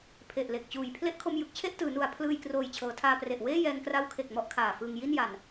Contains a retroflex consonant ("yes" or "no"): no